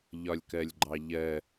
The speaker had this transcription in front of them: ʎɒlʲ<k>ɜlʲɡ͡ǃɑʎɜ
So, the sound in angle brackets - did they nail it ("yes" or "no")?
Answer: yes